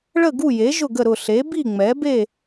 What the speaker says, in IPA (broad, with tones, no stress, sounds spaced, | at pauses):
ɭ ə˥˨ ɡ u˥˨ j e˩˥ ʒ ʊ˥˨ ɡ ə˥˨ ɾ ʊ˥˨ ɬ e˩˥ b i˥˨ ŋ͡m ɛ˩˥ b e˥˨